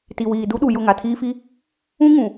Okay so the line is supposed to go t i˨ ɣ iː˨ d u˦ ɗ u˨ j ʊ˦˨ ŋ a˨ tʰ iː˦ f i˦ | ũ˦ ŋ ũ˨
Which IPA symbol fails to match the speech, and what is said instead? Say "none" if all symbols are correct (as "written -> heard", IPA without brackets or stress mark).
ɣ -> w